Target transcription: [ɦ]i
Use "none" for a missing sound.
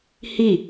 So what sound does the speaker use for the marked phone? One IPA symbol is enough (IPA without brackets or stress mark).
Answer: h